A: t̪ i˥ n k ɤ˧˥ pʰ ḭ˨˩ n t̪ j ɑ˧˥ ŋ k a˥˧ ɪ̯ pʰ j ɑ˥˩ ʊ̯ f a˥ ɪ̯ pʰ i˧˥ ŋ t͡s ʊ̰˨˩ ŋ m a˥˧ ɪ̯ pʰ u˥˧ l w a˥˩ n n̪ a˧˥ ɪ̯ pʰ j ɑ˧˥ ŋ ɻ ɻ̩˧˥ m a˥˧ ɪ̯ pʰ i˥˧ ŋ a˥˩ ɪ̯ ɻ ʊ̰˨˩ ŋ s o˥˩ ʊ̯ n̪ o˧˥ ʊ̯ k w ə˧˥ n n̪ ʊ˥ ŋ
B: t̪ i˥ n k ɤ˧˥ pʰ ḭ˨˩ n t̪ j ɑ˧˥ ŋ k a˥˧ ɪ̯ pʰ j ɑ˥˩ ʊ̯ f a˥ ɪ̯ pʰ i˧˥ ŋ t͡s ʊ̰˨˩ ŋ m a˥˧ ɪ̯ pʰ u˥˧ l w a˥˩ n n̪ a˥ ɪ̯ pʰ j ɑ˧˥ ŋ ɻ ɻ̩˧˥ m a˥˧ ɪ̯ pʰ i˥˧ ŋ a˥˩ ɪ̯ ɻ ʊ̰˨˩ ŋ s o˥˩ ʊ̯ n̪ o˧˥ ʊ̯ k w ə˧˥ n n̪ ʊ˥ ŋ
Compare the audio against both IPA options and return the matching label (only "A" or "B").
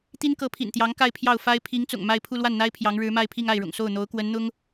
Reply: B